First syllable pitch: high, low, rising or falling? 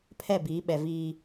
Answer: falling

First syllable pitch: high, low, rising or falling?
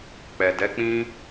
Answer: low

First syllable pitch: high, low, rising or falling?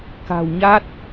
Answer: low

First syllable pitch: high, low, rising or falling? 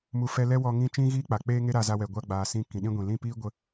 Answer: falling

